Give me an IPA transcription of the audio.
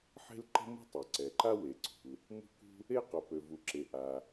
ħ e̤˥ l ǃ ə̤˥ m ṳ˥ tˤ ø˩ ǀ ɛ˩ ǃ a˥ w e˩ ǀ ṳ˩ l | m ṳ˥ k ṳ˥ | e˥ q o˩ p ø˩ v u˩ ǁ e˩ ʔ a˩

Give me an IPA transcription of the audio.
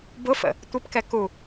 b ʊ f ə̰ | tʷ ɪ p k ɛ k u

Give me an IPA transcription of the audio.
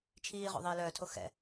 t͡ʃʰ iː ʁ o̰ ðˤ iː l œː tʰ o x ɛ̰

